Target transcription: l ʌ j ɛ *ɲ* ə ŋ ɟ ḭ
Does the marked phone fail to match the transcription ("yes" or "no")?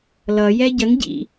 yes